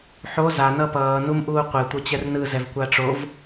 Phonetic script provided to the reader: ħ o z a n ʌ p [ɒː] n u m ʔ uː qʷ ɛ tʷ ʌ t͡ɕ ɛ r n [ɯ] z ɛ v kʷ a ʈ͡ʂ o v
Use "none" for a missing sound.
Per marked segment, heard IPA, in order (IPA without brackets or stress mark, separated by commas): ʌː, ɯ